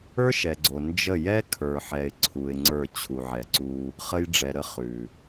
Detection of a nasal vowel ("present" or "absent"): absent